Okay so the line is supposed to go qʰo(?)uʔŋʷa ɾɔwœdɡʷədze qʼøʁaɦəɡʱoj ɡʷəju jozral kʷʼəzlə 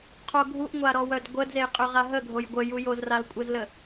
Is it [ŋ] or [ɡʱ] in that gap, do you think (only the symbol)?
ɡʱ